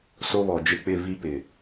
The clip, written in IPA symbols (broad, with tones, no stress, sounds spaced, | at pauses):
s o˦ β ɔ˨ d͡ʒ ɪ˦ k͡p ɪ˦˨ v i˦ p ɪ˨